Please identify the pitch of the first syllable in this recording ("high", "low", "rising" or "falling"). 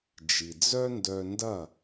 low